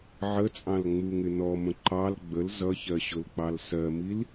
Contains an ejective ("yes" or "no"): yes